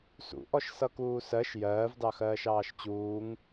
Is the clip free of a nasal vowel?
yes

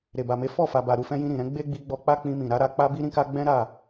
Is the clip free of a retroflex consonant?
yes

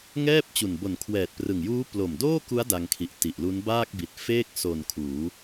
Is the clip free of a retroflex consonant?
yes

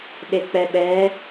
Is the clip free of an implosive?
no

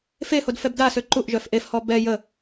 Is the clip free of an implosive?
yes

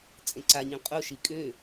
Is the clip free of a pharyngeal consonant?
yes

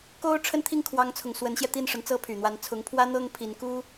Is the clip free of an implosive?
yes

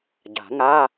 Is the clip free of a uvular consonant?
yes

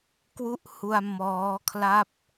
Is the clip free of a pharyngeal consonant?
yes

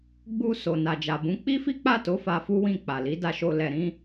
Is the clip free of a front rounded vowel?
yes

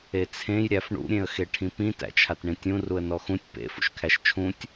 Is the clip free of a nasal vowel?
no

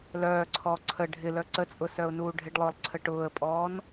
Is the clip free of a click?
no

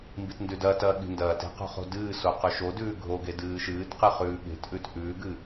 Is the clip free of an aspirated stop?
yes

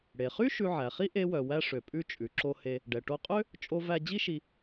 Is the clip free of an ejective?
no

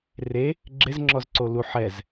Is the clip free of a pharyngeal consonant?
no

